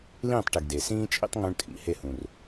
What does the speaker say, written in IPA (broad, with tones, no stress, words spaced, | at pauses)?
lĩː˦˨tˤʈi˨ɡ de˨sĩː˦t͡ʃʼḭ˦tˤ ŋũ˧ɳtʼḭ˨ he˦˨ hũ˨r